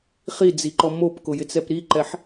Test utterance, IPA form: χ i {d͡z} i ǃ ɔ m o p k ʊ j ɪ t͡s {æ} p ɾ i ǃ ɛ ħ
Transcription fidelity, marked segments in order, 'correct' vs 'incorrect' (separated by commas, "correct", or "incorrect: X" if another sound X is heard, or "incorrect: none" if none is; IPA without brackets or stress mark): correct, incorrect: ɛ